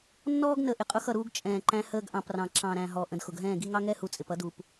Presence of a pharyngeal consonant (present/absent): absent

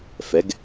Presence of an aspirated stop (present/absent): absent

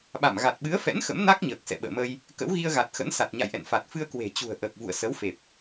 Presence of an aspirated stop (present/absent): absent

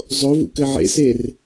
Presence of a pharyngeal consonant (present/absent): present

